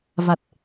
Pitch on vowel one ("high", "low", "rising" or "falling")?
low